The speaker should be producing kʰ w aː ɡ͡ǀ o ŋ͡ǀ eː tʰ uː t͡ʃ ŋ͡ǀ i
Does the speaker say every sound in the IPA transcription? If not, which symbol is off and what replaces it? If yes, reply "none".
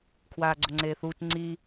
tʰ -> θ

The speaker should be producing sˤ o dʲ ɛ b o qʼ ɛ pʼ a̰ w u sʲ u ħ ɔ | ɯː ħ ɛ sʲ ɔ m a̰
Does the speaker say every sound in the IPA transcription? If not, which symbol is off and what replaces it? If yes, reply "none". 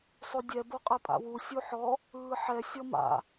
none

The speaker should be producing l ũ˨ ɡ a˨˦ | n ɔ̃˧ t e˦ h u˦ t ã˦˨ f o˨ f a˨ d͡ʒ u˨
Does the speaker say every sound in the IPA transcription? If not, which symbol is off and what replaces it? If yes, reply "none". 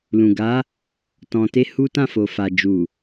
n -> t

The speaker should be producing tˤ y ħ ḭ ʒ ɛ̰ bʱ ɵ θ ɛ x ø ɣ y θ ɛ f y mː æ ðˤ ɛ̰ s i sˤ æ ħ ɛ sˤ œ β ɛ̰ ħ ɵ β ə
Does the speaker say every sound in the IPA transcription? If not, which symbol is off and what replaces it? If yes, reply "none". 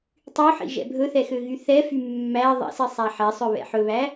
ə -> æ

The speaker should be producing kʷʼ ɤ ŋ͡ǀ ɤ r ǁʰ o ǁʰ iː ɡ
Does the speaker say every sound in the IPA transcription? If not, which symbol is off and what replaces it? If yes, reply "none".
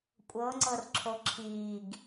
none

